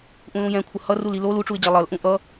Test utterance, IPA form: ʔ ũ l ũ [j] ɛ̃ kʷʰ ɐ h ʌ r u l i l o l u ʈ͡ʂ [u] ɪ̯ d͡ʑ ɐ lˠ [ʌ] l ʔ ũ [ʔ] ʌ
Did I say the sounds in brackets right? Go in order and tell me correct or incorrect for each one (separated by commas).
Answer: correct, correct, correct, correct